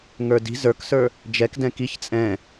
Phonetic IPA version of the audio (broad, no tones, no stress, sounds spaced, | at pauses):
ŋ ə˞ d i̤ z ə˞ k s ə˞ | d͡ʒ ɛ k d ɛ̃ k i ç t͡sʼ ɛ̃